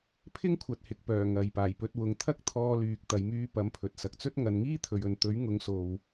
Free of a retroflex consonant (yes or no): yes